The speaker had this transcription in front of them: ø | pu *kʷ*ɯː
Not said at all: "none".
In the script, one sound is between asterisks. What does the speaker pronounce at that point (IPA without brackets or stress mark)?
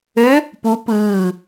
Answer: p